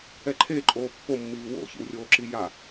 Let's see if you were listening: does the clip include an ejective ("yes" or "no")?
yes